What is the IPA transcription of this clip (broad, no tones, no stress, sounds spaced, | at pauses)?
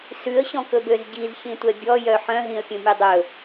s ʉ ə̯ ɕ ɔ̃ k ɵ b ø z ɟ i z ç ĩ tʷ ɛ bʲ ɔ j œ ħ œ̃ ɦ ĩ ə̯ pʲ ũ mʲ u dˤ ɵ